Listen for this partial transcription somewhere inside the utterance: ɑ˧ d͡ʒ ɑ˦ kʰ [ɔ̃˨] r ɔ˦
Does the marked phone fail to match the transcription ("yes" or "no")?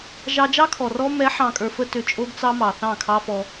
yes